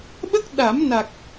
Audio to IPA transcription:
ɓ ə˦˥ k̚ ɗ a˨˩˦ m n a˨˩ k̚

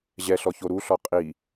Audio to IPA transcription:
ʑ ɛ ɬ ɔ ç o ɾ u ɬ ɔ qʼ i

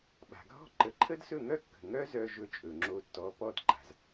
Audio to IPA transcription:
ɓ a̤˩ ɡʱ ɔ̤˥˩ ǃ ə˩˥ ǃʰ ə˥ d s ɵ˥˩ ŋ œ˥ kː ə̤˩ ŋ œ˥ z œ˧ ʒ ɵ˧ t͡ʃʼ ɵ˩ ŋ͡ǁ o˧ tː ɔ˩˥ p ɔ˧ d ǃ a̤˩ z

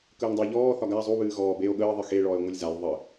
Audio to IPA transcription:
k əː ŋ dˤ ə ʎ ɔː θ ɒ ɡ a zˤ u β ɨː ɣ ɔː b e o̯ ɠ əː ðˤ ɨ x e ɭ ɔː e̯ ŋʷ ɨ lʲ z a lʲ ðˤ ə

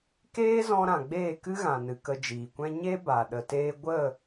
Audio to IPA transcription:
k eː˦ z ɔ̃˧ ɾ ã˨ ɡ͡b eː˦˨ k ɨ˦ ɣ ã˨ n ɨ˨ k ə˧ d͡ʒ iː˨ kʷ ɛ̃˦ ɲ e˦ b a˨ ɗ ə˨ t eː˧ ɡʷ ə˦˨

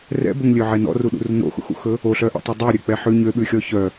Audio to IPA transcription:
r ɛ̰ b ɵ ŋ lʲ ø ʕ ɛ n ɔ̰ r u ɗ ṵ r n o̰ x ṵ x ṵ x ɵ | o ɬ œ ʔ ɛ̰ tˤ œ dˤ o ɾʲ ø k͡p ɛ ħ ʉ ɲ ø ɓ ʉ xʲ ɔ ç œ

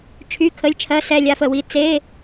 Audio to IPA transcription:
t͡ʃʰ y˧˥˧ kʰ ə˧˥˧ lʲ t͡ʃʰ ɜ˧˥˧ s ɛ˥˧ lʲ a˧˥˧ f ə˥˧ w i˧˥˧ t͡s e˧˥˧

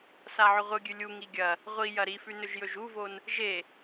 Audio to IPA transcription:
s a ʕ ɵ ʁʷ ɨ ɡʲ ʉ lʲ u ŋ i ɡʲ ɐ | ʁʷ i j ɐ ɾ i f ʉ n ɵ ʒ j ɵ ʒ u v o n | ʒ e

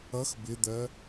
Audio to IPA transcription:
ʌ x b ɪ d̪ ɜ

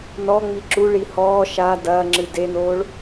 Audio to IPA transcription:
n ɔ ŋ͡m i ǁ u ɭ i h ɔː ʃ a d ɐː ŋ͡ǁ ɨ d e n oː ɭ

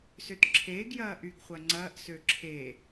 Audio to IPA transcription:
s ø t ǁʰ eː ɡ j ɐː ʔ y ɡ χʷ ɐ ŋ͡ǀ ɐː ʔ s ø ǁʰ e

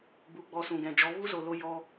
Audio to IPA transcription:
b u˨ ɡ͡b ɔ˧ s ũ˨ ɡ ɛ̃˨ d͡ʒ ɔ˨˦ v u˦ z o˨ l o˧ j ɔ˧

